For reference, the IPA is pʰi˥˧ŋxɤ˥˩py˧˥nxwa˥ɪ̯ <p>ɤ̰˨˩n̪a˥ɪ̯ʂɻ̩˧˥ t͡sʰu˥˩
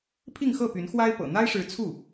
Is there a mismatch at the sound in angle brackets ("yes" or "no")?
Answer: no